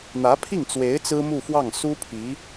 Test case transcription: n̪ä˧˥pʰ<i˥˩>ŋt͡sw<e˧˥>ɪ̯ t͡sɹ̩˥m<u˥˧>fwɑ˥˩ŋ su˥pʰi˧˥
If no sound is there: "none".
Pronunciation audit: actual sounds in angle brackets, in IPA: i˥˩, e˧˥, u˥˧

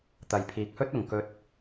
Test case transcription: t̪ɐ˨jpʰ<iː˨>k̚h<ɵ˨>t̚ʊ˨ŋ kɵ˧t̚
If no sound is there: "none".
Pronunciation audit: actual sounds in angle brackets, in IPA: iː˨, ɵ˥

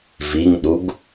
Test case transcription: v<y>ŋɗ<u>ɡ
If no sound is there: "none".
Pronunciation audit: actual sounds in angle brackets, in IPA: i, u

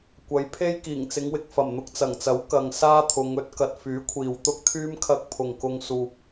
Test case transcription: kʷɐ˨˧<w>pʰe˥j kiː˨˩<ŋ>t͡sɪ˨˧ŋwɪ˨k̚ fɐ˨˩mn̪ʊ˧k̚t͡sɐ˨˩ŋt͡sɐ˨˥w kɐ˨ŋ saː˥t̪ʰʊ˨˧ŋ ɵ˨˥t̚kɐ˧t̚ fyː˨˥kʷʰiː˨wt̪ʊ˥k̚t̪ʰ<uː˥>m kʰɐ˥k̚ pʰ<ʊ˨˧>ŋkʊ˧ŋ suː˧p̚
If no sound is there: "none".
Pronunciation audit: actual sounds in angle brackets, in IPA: j, ŋ, yː˥, ʊ˨

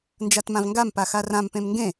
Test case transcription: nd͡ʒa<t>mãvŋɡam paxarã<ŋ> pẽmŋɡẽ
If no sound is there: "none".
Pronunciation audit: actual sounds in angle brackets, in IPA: t, m

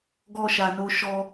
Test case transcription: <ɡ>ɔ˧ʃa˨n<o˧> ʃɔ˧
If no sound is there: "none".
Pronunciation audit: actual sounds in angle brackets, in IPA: ɡ, o˧

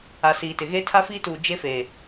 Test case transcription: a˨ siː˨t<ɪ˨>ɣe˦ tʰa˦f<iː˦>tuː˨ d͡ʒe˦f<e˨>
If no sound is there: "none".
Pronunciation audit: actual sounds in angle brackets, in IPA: ɪ˨, iː˦, e˨

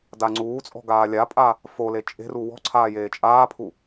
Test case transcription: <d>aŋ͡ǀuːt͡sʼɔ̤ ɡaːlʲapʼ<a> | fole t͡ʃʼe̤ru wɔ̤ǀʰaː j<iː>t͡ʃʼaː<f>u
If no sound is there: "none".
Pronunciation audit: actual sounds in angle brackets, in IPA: d, a, eː, pʰ

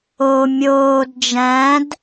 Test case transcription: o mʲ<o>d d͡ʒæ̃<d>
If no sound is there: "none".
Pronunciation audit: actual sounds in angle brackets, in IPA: oː, d

